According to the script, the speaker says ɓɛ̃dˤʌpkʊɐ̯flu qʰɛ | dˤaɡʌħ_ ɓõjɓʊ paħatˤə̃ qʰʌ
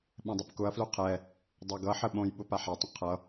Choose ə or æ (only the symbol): ə